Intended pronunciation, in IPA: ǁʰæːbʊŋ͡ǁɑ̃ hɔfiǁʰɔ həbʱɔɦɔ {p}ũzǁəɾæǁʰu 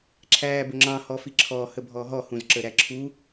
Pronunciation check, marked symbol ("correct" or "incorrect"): incorrect